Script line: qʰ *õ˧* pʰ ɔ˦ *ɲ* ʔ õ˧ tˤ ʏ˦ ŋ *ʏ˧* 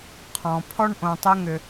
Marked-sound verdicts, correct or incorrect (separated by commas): incorrect, incorrect, correct